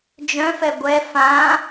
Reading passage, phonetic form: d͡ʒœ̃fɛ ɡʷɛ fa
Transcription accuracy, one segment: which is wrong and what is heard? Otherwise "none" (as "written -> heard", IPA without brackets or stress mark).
a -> ã